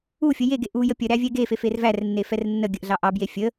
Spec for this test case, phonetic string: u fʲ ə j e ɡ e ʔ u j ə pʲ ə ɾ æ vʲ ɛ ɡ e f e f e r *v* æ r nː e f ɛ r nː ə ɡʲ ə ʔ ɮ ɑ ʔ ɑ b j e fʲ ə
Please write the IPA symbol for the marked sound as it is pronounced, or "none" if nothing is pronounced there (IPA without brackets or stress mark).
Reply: v